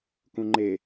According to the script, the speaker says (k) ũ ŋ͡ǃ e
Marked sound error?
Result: no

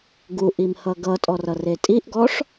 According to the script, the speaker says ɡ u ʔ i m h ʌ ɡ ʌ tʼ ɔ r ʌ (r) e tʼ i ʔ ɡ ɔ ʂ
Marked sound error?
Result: no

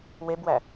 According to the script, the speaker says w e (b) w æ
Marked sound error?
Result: no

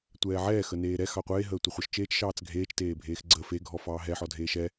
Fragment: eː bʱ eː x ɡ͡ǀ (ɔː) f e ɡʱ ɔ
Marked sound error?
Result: yes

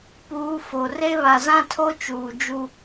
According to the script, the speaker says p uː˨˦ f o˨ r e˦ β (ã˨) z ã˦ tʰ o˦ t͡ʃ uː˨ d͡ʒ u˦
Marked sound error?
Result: yes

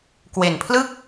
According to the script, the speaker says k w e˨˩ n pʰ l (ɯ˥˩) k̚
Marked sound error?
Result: no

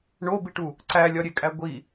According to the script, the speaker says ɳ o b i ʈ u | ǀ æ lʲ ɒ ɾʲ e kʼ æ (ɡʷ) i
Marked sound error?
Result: no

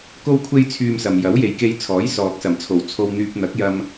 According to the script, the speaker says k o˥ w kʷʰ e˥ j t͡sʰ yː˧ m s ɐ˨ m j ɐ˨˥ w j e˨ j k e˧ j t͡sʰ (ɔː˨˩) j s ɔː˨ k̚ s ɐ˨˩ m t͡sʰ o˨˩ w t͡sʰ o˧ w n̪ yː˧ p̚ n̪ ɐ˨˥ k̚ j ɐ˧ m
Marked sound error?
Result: yes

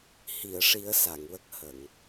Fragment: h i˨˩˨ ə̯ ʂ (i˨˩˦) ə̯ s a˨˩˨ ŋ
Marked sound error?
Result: no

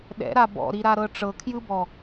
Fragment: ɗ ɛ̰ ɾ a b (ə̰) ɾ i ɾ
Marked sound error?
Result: yes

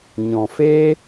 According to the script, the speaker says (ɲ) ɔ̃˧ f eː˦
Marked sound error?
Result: no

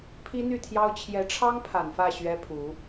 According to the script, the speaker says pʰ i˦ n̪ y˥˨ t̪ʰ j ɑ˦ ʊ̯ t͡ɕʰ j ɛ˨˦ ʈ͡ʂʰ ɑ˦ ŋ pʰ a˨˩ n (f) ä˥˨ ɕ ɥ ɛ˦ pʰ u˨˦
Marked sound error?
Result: no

